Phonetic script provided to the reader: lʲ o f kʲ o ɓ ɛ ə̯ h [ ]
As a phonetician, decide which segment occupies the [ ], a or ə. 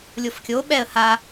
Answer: a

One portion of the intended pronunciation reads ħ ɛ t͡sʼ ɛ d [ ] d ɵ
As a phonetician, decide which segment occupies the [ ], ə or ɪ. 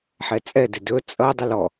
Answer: ɪ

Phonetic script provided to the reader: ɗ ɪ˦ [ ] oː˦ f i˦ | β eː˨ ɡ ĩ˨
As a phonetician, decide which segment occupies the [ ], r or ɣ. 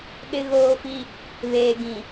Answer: ɣ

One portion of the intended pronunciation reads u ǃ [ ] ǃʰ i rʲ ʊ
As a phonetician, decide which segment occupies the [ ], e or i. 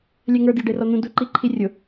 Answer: i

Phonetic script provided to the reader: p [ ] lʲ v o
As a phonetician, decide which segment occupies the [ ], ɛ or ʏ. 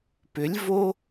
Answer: ʏ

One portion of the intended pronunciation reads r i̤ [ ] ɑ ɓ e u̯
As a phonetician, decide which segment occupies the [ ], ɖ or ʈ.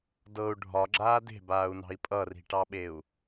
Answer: ʈ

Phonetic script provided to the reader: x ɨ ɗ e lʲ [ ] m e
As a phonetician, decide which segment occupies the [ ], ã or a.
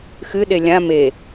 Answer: ã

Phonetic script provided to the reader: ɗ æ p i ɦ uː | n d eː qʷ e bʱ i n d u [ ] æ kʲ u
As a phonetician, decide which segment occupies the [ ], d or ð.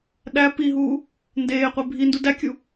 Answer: d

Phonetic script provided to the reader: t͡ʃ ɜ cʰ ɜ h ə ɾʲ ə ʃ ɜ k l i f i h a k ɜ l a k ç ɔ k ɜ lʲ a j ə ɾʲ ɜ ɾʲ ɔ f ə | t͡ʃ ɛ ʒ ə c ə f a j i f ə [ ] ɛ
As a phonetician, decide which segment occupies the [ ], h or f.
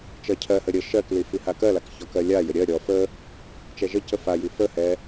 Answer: h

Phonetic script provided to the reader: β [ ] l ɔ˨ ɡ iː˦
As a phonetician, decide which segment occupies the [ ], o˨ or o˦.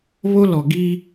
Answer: o˦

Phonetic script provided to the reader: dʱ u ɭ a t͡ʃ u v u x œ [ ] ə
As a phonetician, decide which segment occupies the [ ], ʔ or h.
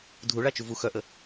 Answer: ʔ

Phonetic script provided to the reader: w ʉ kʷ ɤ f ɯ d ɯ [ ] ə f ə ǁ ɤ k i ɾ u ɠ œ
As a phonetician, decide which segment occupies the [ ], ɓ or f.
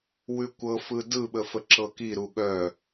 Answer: ɓ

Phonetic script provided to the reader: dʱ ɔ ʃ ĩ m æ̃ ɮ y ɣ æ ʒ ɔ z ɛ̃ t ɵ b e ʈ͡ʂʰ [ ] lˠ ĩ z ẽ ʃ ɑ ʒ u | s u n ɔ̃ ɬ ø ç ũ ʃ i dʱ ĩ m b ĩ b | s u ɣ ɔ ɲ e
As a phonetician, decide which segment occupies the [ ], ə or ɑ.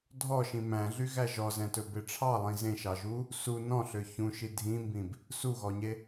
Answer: ɑ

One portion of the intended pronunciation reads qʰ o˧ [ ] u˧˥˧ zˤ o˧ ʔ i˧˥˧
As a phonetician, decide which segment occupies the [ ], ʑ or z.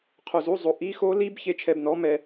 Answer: z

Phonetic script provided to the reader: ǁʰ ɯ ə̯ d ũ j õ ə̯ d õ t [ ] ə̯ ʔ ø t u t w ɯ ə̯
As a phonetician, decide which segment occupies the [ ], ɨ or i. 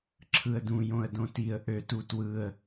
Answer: i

